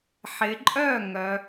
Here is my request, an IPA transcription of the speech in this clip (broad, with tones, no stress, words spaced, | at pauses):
ħɪ˩˧ǃʼœ˥˩ ŋœ˩˧